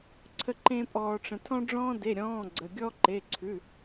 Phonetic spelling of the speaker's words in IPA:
ǀʰə˥ǃẽ˥ pʼɔː˥ʈ͡ʂə̃˥ tʰɔ̃˥ɖ͡ʐɔ̃ː˥de˧˥˧ ɾʲɔ̃ː˧˥˧ ɡ͡ǀə˧˥˧ ɡʲɔ˥ǃe˧˥˧ǀʰʉ˧˥˧

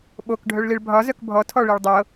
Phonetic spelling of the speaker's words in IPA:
ɓok ɖʱœɭliɭbʱɒ zœkbʱɔ tʰɔɭiɭdˤɤ

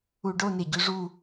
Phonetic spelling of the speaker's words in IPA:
uɖo neɟʉʐu

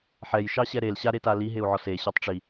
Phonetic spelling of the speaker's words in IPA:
ħɛj ʃɑɕɛɾel ɕaɾeta liɦeu̯ʕɔ se ɕɔtˤʈ͡ʂi

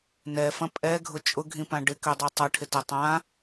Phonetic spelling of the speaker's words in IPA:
nɛfɐ̃ pʼɛɡʱʊ t͡ʃʼʊɡʱĩpã ɖɪkødˤi tˤɐʈʰɪtɐ tˤã

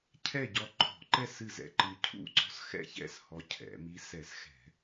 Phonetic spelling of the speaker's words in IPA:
cʰɛ˥˨ɟɔ˧ǃʰɔ̤˧˩˧ǃɛ˥˨s ɨ˥˨zɛ̰˧ǃɨ˧ cʰṵ˥˨ǀɔ̤˧˥sxɛ̰˥˨çɛ̰˥˨s hɔ˧cʰɛ̰˧˩˧mi˧˥ sɛ˧˩˧sxɛ̤˧˩˧

